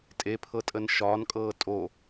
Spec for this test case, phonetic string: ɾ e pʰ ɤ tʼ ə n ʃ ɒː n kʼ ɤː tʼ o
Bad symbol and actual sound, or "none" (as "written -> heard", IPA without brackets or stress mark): ɾ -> tʼ